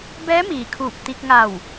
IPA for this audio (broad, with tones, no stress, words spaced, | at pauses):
bɛː˧˥miː˩ kʰuː˧˩p̚ t̪i˧k̚ŋa˧˩w